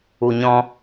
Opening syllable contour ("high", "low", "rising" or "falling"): low